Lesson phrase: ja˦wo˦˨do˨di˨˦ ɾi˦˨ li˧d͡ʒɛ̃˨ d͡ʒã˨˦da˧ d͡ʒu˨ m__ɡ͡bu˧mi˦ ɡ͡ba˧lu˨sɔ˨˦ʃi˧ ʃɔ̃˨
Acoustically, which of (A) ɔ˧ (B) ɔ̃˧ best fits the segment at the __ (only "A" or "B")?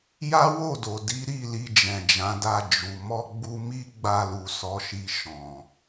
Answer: A